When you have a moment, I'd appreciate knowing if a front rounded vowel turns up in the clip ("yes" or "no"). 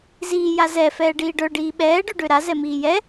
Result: yes